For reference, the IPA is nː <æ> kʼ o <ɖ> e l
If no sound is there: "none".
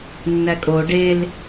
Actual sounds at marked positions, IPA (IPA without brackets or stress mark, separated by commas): æ, ɖ